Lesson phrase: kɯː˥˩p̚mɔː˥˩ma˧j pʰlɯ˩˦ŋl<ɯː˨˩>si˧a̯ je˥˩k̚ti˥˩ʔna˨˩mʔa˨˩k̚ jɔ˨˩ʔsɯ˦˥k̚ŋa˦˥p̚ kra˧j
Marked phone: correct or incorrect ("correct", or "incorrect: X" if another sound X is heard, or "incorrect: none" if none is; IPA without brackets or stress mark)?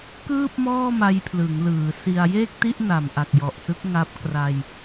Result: incorrect: ɯː˩˦